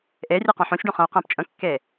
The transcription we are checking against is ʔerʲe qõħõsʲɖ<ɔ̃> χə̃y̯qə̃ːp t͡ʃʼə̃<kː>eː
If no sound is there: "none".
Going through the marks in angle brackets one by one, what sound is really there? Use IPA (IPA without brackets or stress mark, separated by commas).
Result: õ, kː